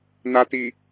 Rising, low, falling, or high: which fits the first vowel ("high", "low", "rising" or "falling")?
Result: low